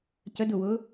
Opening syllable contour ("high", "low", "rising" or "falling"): rising